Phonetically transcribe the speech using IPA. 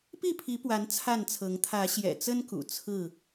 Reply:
p i˥˨ pʰ i˨˦ p w a˨˦ n t͡sʰ a˥˨ n t͡sʰ ɤ˨˦ ŋ t̪ʰ ä˨˦ ɕ j ɛ̰˨˩ t͡s ə˦ n k ṵ˨˩ t͡sʰ ɹ̩˥˨

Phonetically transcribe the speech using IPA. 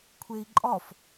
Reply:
kʷʰ e i̯ ǃʼ ɒ f

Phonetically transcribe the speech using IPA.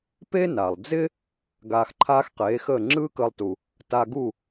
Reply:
p e˥ n a˩ lˠ d͡z ɪ˥ | ɡ aː˧ x ǃʰ aː˥ x q eː˩˥ x əː˥˩ ŋ͡ǁ ɯː˥ k əː˧ lˠ t u˩ | t a˧ ɡ u˥˩

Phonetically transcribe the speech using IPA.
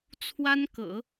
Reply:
t͡sʰ w a˥ n k ɤ̰˨˩˦

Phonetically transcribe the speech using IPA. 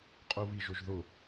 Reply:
qʼ u β i ʒ ʊ ʒ ð ʊ

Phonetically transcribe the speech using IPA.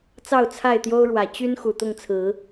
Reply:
t͡s ɑ˥˨ ʊ̯ t͡sʰ a˥˨ ɪ̯ t̪ j o˦ ʊ̯ ɻ w ä˨˩ t͡ɕ y˦ n x u˨˩ t̪ ʊ˥˨ ŋ t͡sʰ ɹ̩˨˦

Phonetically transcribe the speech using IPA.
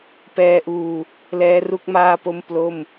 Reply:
p ɛː˧ ʔ uː˧ | l ɛː˦˥ r u˥˩ k̚ m aː˥˩ p o˥˩ m p l o˥˩ m

